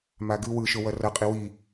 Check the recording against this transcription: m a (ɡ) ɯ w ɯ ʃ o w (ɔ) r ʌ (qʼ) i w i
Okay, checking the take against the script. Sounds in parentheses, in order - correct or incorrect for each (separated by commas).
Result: correct, incorrect, correct